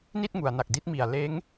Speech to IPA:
n i˥˩ t̚ ŋ u˩˦ a̯ n a˨˩ k̚ d i˦˥ t̚ m i˨˩ a̯ l eː˦˥ ŋ

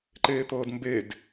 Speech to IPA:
ǃ eː t̪ ɤː d m b e d

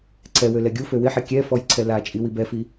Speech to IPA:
ǀʰ ɛ w ø l ɛ ɡʲ u f ø w ɪ ħ ɛ kʲ ɛ f ɔ j ǀʰ ɛ l a t͡ʃʼ i w i b ɛ f i

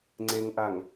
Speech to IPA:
ŋ͡ǀ e ŋ ʔ a ŋ

